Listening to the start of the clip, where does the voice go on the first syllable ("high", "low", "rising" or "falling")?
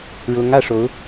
rising